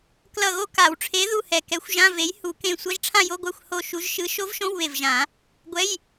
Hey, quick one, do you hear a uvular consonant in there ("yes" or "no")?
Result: no